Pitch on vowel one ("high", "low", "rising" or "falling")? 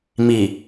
low